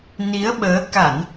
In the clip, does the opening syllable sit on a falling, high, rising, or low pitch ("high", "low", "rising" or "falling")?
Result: rising